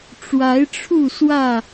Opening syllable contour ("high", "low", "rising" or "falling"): rising